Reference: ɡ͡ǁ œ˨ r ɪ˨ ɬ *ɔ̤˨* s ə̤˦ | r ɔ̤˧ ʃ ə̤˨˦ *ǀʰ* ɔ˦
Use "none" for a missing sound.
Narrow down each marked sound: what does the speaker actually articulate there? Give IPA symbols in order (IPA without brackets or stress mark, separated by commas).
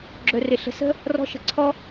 ə̤˨, ǀʰ